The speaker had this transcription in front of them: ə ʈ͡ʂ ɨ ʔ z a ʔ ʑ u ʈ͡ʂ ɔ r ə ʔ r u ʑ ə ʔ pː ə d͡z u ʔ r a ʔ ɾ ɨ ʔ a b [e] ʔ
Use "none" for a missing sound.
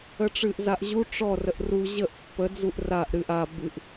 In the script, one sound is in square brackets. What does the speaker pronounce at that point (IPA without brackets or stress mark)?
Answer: ɨ